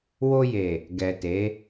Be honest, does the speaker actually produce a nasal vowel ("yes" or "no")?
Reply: no